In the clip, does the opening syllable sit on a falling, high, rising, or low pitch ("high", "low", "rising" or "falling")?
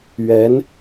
rising